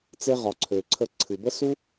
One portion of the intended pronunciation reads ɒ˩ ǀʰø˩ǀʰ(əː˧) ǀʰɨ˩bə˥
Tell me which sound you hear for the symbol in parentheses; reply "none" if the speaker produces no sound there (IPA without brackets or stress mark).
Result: ə˧